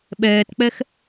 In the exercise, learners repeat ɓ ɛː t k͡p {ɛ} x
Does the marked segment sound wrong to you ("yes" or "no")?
no